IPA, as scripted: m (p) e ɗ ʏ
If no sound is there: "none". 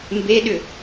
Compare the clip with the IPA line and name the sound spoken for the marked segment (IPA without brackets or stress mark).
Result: b